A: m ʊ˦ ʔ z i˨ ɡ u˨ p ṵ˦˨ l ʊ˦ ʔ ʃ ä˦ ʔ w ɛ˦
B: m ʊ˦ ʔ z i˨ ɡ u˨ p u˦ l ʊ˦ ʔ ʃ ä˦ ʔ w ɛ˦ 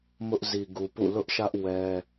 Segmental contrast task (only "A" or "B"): A